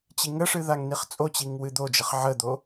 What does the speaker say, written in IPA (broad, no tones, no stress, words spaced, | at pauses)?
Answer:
t͡ɕiŋəʂɨ ðaŋniχt͡sʼot͡ɕiŋ wɨd̪od͡ʒəχ ʕəd̪o